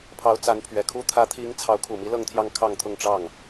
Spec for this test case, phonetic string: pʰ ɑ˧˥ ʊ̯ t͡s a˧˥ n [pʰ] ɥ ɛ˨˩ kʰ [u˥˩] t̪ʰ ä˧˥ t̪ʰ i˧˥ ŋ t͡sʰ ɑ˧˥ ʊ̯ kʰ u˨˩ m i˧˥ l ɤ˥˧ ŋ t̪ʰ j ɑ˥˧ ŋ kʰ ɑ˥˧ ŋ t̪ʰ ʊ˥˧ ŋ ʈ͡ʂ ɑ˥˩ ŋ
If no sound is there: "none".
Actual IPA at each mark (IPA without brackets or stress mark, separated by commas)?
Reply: pʰ, u˥